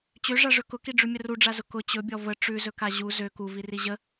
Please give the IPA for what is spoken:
t͡ɕøʐaʐɵ kʊkiɖ͡ʐʉmʲə ruɖ͡ʐazʊ kʊ t͡ɕɵbʲɔ və ʈ͡ʂʉzɵka ʑu zø kuviri ʑə

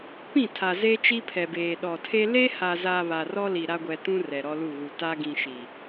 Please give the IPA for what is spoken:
pĩ˦˨tʰa˨ze˦ t͡ʃi˦pʰɛ˨beː˨ ɗɔ˨tʰe˦ le˦ha˨za˨ βa˨rɔ˦li˨ ɾa˦ɡʷɛ˨ tũ˦ rɛ˨ɾɔ˦lu˦˨ɣu˨ ta˦ ɡĩ˨ʃi˨

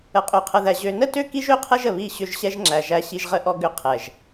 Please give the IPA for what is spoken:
ə˨qʼø˨qʰə˨ðæ˨ ʑø˨nə˦tø˦ ki˦ʒø˦˨qʰɛ˦ʒ ə˨βi˦˨ɕʏ˦˨ʒ ɕɛ˦ʒŋ͡ǁæ˨ ʒæ˦ɕi˦ʒʁə˦ʔɔ˦ ɡʏ˦ qʰɛ˨ʒ

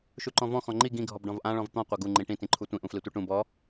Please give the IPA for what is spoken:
ʃuǃɔ̃vɔ̃ xɔ̃ŋ͡ǃi ɡĩ ɡʱɔbɖɔ̃vʔã ɭɔ̃vt̪ɔ̃ qʷaɡu ŋ͡ǃĩʈĩ tĩǃʰutʷĩʔ ũflitʷiʈũ bɔ

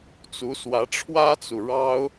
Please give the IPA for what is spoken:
t͡su˧˥swä˧˥ ʈ͡ʂʰwä˥t͡su˨ ɻɑ˥ʊ̯

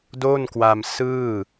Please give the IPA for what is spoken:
do˥˩nkwa˧msɯː˥˩

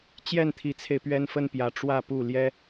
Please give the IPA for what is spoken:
t͡ɕjɛ˥˩nt̪ʰi˧˥t͡sʰe˧ɪ̯ pɥɛ˥nfə˥n pjä˧˥ ʈ͡ʂwä˥˧ pu˥˩ ljɛ˥

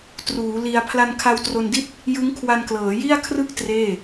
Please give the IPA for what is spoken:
truː˩˦ li˧a̯ pʰla˧nkʰa˧wtro˧ndi˥˩t̚ | jɯ˦˥ŋkʰwa˧nklɤː˩˦ ji˥˩a̯kʰrɯ˥˩k̚ treː˥˩

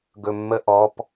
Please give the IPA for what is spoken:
ɡɵmːəʔɔp

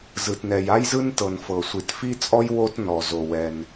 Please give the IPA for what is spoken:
zɯ˩tnɛ˩j a˥jzɯ˥ntɤ˩n fɤ˩sʷi˩tfi˥t͡sʼɔ˥j wo˥tnɔ˩ zo˩wɛ˩n

